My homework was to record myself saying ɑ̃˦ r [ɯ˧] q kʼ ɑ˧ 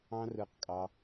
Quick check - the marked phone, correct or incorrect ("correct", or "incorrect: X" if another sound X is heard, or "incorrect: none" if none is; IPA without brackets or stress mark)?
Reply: correct